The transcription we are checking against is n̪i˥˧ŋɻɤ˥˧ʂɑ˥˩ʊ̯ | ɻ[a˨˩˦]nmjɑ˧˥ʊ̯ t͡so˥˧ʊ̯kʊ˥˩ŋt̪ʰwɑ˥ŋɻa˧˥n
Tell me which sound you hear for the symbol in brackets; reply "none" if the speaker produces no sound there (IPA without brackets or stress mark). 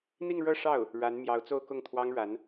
a˧˥